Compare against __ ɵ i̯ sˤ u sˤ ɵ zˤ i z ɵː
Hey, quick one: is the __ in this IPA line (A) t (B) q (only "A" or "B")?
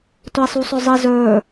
A